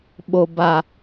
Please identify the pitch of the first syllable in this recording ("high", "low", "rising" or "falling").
low